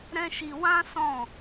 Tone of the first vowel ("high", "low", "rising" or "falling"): high